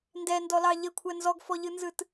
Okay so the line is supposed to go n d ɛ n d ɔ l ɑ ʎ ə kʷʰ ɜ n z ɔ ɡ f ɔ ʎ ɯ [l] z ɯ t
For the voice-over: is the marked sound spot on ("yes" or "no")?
no